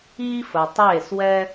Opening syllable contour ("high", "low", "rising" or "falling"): high